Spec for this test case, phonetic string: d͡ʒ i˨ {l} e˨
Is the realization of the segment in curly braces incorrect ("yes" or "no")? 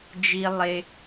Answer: yes